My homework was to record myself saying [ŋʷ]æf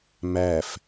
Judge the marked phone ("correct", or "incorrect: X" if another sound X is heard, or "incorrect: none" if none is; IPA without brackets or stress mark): incorrect: m